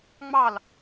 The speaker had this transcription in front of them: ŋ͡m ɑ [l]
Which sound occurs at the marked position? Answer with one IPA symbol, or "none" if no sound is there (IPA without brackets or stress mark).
l